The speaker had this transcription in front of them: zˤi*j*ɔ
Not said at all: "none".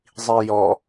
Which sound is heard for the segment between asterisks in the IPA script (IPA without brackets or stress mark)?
j